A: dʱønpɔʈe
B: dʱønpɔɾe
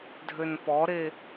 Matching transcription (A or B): B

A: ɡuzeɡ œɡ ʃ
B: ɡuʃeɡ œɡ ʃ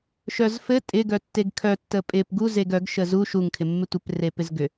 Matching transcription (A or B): A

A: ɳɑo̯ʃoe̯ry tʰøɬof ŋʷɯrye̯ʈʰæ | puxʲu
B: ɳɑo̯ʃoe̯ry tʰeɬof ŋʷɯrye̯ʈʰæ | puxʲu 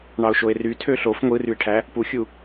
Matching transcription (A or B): A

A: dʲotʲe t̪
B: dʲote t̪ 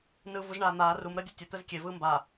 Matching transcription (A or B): A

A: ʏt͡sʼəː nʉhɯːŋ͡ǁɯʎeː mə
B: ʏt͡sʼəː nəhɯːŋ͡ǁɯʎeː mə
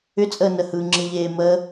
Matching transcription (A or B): B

